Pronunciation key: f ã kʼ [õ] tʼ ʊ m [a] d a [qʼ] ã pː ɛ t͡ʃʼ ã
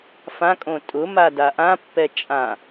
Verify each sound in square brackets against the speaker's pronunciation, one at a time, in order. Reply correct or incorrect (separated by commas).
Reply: correct, correct, incorrect